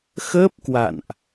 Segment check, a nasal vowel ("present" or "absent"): absent